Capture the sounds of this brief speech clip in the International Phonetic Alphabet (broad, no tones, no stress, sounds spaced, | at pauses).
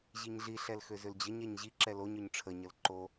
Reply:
ʑ i ɲ ɮ i ɬ ɛ l x ø z ʏ l d͡ʑ ə ɲ ɛ ɲ ʑ i ǁ ɛ l o ɲ ø ɲ ʈ͡ʂʰ ə ɲ ə l ǃ o